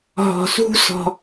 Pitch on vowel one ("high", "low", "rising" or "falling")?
low